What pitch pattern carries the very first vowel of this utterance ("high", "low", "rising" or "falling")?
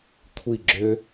falling